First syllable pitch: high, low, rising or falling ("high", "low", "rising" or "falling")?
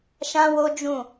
high